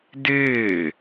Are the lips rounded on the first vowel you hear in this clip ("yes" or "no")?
no